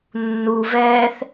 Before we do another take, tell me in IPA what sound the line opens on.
nː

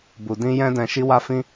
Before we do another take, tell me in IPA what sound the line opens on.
b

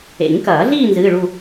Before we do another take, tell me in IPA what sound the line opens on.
ḛ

